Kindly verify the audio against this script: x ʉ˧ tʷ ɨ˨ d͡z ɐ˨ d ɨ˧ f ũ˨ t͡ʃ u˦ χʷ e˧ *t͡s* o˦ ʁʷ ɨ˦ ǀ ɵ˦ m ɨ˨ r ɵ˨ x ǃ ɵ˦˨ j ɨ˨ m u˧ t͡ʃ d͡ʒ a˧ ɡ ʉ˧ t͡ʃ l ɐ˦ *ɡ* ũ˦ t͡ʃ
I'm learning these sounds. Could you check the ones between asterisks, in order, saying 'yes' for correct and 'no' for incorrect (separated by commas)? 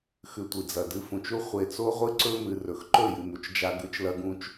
yes, yes